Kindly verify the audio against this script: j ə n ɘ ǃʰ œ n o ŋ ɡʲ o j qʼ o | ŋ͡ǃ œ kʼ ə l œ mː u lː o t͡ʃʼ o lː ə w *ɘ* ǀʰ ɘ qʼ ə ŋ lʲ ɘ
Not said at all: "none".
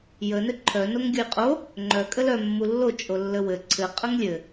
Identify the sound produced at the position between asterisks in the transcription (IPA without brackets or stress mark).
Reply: ɘ